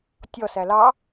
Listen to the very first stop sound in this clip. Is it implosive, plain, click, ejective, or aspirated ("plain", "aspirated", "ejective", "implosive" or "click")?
plain